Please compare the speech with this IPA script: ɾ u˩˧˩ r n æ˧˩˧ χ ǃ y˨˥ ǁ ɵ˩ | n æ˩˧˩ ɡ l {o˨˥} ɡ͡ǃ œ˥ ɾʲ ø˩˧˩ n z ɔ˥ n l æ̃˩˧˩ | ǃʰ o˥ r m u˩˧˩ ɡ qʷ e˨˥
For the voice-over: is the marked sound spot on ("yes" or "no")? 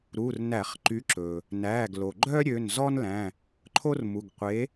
no